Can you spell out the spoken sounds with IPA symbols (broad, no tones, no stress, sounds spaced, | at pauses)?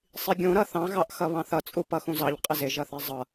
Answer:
sˤ i ɡʲ ũ ɾ ʌ θ ɑ̃ ɣ ɑ ʔ x ʌ β ɑ̃ θ ʌ t͡sʼ u p ʌ x ũ z ɑ ʎ qʼ ɪ z ɪ ʒ ʌ θ ɛ zˤ ʌ